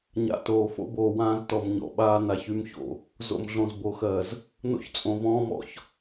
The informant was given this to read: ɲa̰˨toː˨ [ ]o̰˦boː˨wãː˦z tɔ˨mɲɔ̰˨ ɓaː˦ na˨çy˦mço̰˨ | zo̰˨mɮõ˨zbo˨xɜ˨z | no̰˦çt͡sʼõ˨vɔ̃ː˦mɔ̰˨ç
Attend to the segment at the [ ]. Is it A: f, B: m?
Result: A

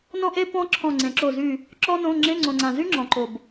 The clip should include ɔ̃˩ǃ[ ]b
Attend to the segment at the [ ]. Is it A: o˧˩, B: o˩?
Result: B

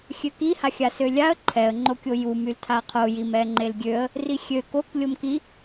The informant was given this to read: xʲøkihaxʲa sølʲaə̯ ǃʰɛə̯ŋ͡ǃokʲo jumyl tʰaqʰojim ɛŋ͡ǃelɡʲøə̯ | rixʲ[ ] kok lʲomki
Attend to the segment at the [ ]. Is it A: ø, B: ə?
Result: A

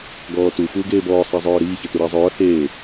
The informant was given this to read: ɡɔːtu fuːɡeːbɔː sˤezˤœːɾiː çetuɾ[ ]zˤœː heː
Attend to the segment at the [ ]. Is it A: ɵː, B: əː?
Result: B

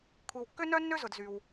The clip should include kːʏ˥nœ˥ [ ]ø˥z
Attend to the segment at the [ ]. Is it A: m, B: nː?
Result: B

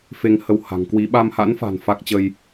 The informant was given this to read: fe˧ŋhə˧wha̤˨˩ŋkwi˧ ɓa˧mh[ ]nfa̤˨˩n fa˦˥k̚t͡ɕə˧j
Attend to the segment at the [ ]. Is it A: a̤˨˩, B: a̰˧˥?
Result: B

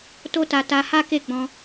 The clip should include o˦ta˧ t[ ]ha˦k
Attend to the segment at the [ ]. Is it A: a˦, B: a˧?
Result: B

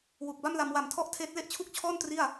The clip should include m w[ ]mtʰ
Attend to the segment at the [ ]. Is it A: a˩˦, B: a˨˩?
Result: B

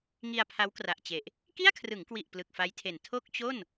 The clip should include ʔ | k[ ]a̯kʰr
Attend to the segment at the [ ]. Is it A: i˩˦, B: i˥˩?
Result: B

